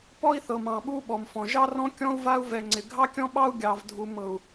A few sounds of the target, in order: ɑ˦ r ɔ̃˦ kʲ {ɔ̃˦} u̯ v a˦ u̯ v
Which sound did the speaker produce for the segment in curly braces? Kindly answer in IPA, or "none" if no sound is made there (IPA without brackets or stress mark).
ɔ̃˦